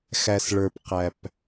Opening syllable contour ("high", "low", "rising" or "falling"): low